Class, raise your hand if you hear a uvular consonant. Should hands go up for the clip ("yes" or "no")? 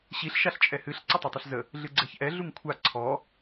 no